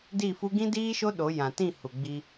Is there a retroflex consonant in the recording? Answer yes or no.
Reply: no